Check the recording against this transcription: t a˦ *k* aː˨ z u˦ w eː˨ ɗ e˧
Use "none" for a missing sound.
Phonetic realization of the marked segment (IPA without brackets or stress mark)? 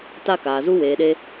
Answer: k